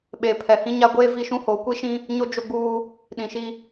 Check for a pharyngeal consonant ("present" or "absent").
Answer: absent